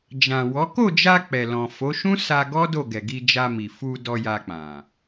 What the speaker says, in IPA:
d͡ʒ ã˨ w ɔ˨˦ k o˦˨ d͡ʒ a˧ k͡p ɛ˨ l ɔ̃˨ f o˨˦ ʃ ũ˦ s a˧ ɡ ɔ˦ d o˦˨ ɡ ɛ˨ ɡ i˧ d͡ʒ a˧ m i˨ f u˧ d ɔ˧ j a˧ k͡p ã˨

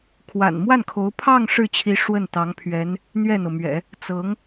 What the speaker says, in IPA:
kʰ w a̰˨˩ n m w a˥˩ n kʰ o˧˥ ʊ̯ pʰ ɑ˥˧ ŋ ʂ ɻ̩˥˩ t͡ɕʰ i˧˥ ʂ w ə˥˩ n t̪ ɑ˧˥ ŋ pʰ ɥ ɛ˧˥ n | n̪ ɥ ɛ˥˩ n̪ ɤ˩ m ɥ ɛ̰˨˩˦ | t͡s ɤ˧˥ ŋ

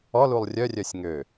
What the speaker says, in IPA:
ɔ l u lˠ rʲ œ rʲ œ sʲ ŋ ø

